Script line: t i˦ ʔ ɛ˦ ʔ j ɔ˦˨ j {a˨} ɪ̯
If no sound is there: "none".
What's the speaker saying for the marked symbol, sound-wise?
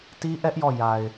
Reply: a˨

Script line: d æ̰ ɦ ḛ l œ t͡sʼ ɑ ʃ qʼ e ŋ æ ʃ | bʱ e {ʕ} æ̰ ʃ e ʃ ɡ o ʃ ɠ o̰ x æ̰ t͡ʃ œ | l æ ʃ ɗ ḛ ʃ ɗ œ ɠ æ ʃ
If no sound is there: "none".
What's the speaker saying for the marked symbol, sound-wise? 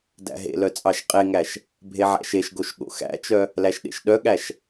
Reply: ʕ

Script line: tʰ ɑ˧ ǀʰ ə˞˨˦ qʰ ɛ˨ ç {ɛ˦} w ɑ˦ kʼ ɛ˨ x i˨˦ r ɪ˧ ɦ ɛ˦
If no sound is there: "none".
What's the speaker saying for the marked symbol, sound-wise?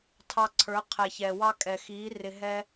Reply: ɛ˨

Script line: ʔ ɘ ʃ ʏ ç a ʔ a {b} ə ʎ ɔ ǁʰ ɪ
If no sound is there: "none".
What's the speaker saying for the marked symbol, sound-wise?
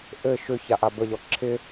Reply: b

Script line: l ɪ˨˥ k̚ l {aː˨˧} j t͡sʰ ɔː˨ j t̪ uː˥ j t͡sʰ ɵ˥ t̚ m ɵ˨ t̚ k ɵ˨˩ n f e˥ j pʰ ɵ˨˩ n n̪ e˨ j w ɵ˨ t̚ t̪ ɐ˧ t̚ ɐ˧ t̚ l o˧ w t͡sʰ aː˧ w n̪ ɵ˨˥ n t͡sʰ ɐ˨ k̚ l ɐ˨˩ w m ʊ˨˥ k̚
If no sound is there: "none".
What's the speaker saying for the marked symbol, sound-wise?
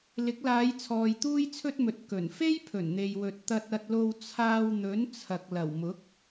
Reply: aː˨˧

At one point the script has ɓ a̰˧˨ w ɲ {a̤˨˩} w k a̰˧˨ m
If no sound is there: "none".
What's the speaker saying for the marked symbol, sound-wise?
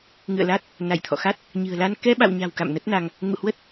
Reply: a̤˨˩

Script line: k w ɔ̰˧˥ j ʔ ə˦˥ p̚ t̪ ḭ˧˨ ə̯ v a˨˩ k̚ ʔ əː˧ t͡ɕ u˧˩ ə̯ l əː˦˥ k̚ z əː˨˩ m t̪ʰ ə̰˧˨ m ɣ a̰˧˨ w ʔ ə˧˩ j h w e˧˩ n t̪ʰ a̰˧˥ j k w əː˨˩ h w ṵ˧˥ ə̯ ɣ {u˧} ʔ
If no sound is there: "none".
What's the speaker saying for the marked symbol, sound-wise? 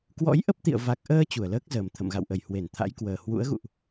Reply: ṵ˧˨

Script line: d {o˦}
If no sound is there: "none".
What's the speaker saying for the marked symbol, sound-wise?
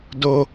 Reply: o˦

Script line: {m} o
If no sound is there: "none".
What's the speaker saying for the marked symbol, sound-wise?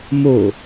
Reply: m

